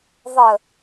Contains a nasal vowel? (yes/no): no